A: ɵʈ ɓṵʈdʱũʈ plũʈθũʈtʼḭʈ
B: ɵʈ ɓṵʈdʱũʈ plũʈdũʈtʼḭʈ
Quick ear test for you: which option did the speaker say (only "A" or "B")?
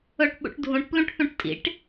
A